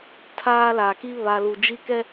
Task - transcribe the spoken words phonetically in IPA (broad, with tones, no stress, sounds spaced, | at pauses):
tʰ aː˦ l a˨ k i˦ β a˨ l u˨ d͡ʒ i˦ k ɛ˦